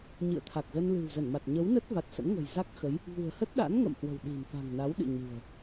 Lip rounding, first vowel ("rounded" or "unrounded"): unrounded